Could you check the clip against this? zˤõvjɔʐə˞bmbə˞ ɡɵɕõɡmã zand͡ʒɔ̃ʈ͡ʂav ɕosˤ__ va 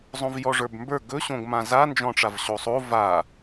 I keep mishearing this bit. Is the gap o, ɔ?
o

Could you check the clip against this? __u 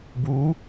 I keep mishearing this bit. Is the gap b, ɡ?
b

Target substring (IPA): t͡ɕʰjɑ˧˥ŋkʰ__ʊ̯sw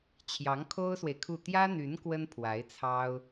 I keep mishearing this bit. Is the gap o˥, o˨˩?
o˥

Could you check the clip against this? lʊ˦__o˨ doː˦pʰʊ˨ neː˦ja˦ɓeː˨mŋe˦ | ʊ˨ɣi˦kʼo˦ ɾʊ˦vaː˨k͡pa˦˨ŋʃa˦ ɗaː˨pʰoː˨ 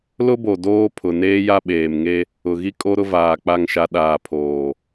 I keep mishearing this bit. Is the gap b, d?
b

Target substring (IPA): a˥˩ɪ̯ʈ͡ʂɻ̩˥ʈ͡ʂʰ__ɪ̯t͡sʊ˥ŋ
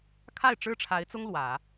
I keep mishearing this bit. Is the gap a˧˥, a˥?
a˧˥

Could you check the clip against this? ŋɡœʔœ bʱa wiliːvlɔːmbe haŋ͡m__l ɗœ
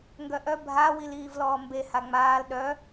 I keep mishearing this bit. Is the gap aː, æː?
aː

